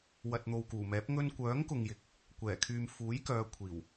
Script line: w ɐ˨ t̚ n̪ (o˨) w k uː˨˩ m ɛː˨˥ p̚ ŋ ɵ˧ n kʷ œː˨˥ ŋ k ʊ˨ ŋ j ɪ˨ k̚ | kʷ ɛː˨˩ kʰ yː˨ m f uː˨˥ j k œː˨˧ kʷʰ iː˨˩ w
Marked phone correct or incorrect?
correct